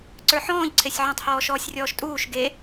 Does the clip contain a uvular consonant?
no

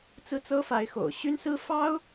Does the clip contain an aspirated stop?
no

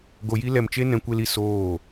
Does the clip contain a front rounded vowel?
no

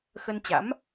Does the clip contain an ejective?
no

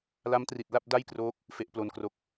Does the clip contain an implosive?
no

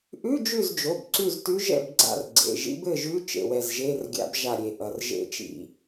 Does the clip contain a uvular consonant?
no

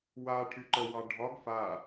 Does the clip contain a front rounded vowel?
yes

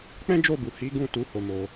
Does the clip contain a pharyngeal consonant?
no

